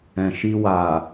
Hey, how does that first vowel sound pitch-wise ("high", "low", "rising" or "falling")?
low